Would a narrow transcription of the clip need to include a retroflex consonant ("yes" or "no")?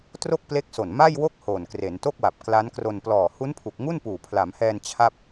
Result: no